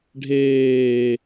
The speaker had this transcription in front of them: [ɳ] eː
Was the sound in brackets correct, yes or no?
no